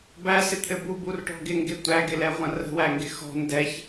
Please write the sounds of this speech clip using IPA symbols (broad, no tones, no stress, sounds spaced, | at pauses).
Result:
b æ s ɪ t̪ʰ ɘ b u b u r ʈ ɔ̤ ɡ ɪ ŋ ɡ ɪ tʷ æ ɡ ɪ l ɛ ʁʷ ɐ̃ r ə̤ w æ ŋ ɡ ɪ x ɔ̤ n d ɛ ç